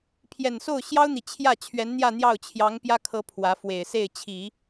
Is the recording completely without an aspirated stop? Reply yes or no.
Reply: no